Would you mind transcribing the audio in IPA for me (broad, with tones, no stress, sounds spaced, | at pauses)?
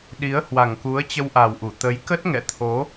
ɗ i˨˦ ə̯ h w a˨˩ ŋ k u˨˦ ə̯ t͡ɕ ə˧ w ʔ a˨˩ w ʔ u˧˩ t̪ ə˨˦ j k ə˦˥ t̚ ŋ ɛ̰˧˨ t̪ʰ o˨˦